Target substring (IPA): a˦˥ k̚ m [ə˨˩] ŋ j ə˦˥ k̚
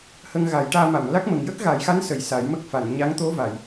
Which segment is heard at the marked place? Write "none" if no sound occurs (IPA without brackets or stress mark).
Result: ə˨˩